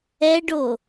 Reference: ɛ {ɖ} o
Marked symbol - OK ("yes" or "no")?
yes